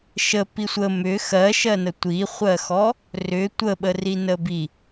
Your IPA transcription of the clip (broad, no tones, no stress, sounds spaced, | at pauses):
ʃ ə p i sʷ ə m ʏ x ɜ ʃ ɜ n ə tʷ i χʷ ɜ x ɔ | r ʏ tʷ ə ɓ ə r i n ə b i